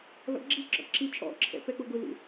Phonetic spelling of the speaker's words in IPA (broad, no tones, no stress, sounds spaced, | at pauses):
l ɔ̰ ɡ͡ǁ i ǁ ɔ̰ ǁ i t͡ʃʼ ɔ̰ ǁʰ ɛ̰ p ɛ k͡p ʊ ɡ ʊ l ṵ